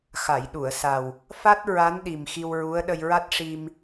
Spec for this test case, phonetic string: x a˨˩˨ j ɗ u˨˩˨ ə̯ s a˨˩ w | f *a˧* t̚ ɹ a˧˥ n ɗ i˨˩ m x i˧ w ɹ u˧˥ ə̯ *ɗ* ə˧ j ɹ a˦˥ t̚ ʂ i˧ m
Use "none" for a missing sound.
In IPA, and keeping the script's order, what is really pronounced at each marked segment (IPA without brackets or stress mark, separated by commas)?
a˦˥, ɗ